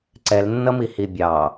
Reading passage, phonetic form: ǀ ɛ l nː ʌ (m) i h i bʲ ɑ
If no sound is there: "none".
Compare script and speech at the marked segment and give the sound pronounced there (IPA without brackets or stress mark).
m